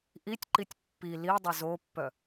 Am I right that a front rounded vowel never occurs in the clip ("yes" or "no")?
no